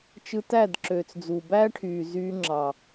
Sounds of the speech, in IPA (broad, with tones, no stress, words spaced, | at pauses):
t͡ʃɯ˧tæ˦˨dǁøː˨t͡sd͡zu˨ bæː˦ʈʰyː˨ zyː˧ŋ͡ǁɑ˨